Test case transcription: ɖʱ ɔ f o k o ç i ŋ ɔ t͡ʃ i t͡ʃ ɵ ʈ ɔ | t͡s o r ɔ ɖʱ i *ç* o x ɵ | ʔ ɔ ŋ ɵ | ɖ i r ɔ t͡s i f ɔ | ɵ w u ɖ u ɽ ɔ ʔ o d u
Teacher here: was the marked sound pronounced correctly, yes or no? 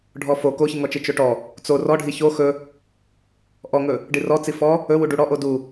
yes